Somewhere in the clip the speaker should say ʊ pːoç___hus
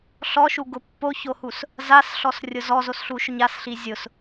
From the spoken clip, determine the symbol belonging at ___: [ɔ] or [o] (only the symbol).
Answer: o